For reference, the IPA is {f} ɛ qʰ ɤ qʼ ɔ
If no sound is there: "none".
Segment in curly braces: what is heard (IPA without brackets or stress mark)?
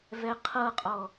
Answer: v